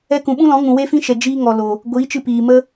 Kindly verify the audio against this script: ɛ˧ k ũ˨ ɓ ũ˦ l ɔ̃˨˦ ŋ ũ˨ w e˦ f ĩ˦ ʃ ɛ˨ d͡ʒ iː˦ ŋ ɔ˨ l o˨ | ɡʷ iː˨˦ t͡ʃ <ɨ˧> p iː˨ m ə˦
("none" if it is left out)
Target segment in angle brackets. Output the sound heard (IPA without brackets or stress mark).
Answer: ɨ˧